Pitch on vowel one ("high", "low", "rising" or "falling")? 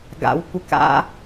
high